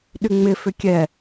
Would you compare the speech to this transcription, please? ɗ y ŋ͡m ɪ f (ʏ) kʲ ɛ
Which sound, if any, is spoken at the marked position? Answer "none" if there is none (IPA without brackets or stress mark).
ʏ